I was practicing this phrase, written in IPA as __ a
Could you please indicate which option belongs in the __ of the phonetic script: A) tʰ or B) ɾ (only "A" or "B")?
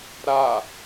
B